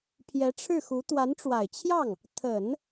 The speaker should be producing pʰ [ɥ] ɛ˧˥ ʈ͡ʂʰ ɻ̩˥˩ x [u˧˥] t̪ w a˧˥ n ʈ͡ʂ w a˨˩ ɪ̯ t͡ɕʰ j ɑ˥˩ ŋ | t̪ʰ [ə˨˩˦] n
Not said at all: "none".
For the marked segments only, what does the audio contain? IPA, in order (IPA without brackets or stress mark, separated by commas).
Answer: j, u˧˥, ə˨˩˦